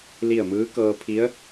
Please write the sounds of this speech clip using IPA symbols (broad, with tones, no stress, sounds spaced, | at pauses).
l i˥˨ ə̯ m ɯː˧˥ k ɤː˧ pʰ i˧˥ ə̯